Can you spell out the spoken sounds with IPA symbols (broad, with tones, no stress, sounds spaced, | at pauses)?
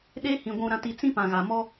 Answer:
ɗ e˦ h ĩ˨ ɡʷ ũ˨ ɾ ã˨ t i˨ t͡s ĩ˦ p ã˨ ɣ a˨ m ɔ˦